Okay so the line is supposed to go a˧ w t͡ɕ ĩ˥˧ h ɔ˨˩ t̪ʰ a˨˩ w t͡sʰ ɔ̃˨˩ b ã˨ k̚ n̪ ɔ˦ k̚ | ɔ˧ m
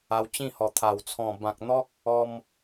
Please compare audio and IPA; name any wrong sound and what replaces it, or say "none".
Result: none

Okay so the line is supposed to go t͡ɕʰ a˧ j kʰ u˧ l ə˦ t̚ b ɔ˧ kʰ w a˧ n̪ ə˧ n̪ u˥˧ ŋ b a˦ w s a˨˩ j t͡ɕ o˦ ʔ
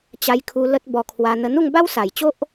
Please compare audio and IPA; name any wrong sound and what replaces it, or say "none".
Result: t͡ɕʰ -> t͡ɕ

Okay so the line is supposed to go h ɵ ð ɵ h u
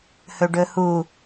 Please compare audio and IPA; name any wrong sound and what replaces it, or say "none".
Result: ð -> ɖ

